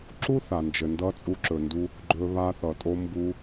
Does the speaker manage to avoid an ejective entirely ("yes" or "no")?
no